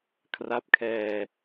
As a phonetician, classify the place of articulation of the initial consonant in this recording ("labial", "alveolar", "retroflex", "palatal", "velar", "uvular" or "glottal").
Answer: velar